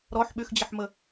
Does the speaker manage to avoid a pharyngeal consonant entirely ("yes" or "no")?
no